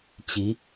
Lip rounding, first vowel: unrounded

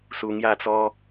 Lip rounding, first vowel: rounded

